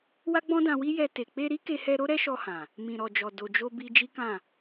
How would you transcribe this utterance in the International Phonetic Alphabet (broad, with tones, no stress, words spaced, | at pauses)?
wa˦ɡ͡bɔ̃˦dã˧wi˦ jɛ˧te˨ k͡pe˧ɾi˦ ke˧hɛ˧ ɾo˦ɾɛ˦ʃɔ˧hã˨ | mĩ˨ɾɔ˨d͡ʒɔ˨ do˨d͡ʒo˧ bi˧d͡ʒi˦kã˦˨